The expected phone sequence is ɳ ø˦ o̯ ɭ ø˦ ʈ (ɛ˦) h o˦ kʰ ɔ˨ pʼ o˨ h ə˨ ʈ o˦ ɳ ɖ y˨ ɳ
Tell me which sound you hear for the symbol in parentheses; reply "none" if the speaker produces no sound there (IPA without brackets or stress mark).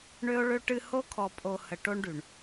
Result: ɨ˦